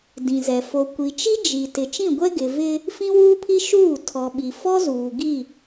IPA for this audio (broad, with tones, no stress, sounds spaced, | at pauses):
d ĩ˨ z ɛ˨ f o˨ kʷ i˨ t͡ʃ i˦ d͡ʒ i˨ t ɪ˨ t͡ʃ ĩ˦˨ ɡʷ ɛ˦ ɡ ɪ˨ v ɪ˦ | f ĩ˦ w uː˦ pʰ i˦ ʃ uː˦˨ tʰ ɔ˨ ɓ i˨ f ɔ˦ z uː˨ ɡ i˦˨